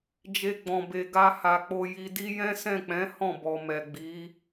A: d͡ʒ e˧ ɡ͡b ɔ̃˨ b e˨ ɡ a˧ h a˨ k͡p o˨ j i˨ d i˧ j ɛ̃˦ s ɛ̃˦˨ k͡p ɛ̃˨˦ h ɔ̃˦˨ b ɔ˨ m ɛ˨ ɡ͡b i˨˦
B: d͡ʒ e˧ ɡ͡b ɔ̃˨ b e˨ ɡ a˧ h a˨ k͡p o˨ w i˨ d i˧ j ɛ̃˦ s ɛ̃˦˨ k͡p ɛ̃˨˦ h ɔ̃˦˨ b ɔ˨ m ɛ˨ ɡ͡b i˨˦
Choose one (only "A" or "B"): A